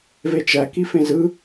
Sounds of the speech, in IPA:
v e t͡ʃ æ k i f ẽ z ɯ

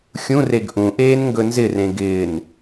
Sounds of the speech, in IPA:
xʲ ũ r e ɡ ʔ ũ ʔ eː n ŋ ɡ ɵ n z ɪ r ẽ ɡ ɪː n

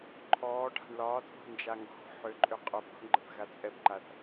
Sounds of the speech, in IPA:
ǃʰ ɔː ʈʰ a̤ ɳ l ɒː t͡sʼ o̤ n d͡ʒ a ŋ ɡ ɔ̤ ħ ʏ ǃʼ ʏ qʼ o p o̤ ɳ ɡ͡ǃ ə θ ɣ a t͡sʼ ɛ b ǃ a θ

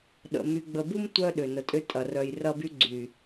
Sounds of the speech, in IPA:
ɗ ə̰˨ m y˨ ɡ͡b ə˨ b u˦ m tʷ œ˦ ɗ ʏ˨ n ə˨ tʼ ʏ˦ tʼ ɐ˨ r œ˨ j r ɐ˦ b y˦ ɡ͡ǀ y˨

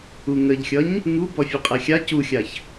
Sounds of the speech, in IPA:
u ŋ ə ʎ xʲ ʌ ɲ | ŋ u b ɔ fʲ ʌ qʼ ɛ xʲ a c u xʲ a ç

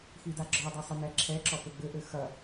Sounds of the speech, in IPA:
x i d a ɡ͡ǁ ɔ dˤ ɘ sˤ ɘ n ɛ ǁʰ ɛ ǁ ɔ p ɘ ɡ͡b ɘ ʔ ɘ x ɐ

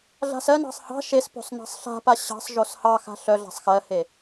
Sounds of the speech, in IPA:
ɮ a̤ s ɜ n ɑ̤ sˤ h ɑ̤ ʃ e s p o̤ sˤ n ɑ̤ sˤ ɬ a̤ p a ɕ ɑ̤ sˤ ʒ o s h ɑ x a̤ ɬ œ ɮ a̤ sˤ x ɜ h e

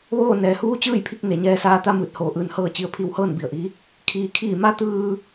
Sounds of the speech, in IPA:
ʋ oː˥˨ n ɛː˩ h uː˧˥ t͡ɕ ɯː˥˨ j pʰ i˧ k̚ n e˩˧ ɲ ɛː˧ s aː˧ t̪ a˥˨ m ɯː˧˩ t̚ h oː˧˩ ʔ ɯː˧ n h ɤː˥˨ t͡ɕ i˧˥ ə̯ pʰ i˧ w h ɤː˥˨ n b i˧˩ ə̯ ʔ i˧˥ | kʰ iː˩ kʰ iː˧˩ m a˧˥ t̪ ɯː˧

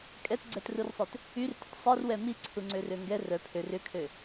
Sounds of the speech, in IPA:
kʼ ɛ t ɡ͡ǀ ɛ t r u r sˤ œ t | y r t ə t sˤ i r w ɛ m i ǀʰ u ŋ͡ǀ ø r ø ŋ ɡ ɛ r œ pʰ ø r ʏ kʰ ø

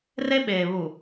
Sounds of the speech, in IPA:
r e˦ ɓ eː˨ β u˨

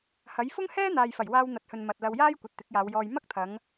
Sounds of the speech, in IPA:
h ɐ˨˥ j f ʊ˥ ŋ h ɛː˥ n̪ aː˨ j f ɐ˨˩ j w aː˧ w n̪ ɐ˨ t̚ h ɵ˨ n m ɐ˨ t̚ l ɐ˧ w j aː˥ j kʷ ɐ˨ t̚ t̪ ɪ˨˥ k̚ j aː˨˧ w j ɔː˧ j m ɐ˥ k̚ t̪ʰ ɐ˨˧ ŋ

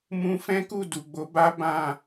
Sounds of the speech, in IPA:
m ũ˧ f ɛ̃˦ k u˦˨ d u˨ ɡ͡b o˨˦ b a˦ b ã˦˨

